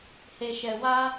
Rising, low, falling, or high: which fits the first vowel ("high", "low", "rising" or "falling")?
low